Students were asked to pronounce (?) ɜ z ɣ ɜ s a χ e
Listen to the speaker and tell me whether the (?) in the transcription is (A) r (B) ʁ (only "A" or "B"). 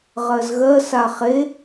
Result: B